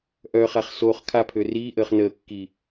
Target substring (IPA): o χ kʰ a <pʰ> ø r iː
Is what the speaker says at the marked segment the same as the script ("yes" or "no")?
yes